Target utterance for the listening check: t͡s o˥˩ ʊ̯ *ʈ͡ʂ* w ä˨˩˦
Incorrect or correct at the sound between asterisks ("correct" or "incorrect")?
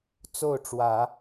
correct